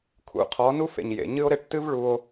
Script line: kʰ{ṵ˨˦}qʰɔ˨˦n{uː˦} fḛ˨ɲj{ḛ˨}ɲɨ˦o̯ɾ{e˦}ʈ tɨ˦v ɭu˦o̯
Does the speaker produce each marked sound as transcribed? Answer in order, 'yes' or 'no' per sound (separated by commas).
yes, no, yes, yes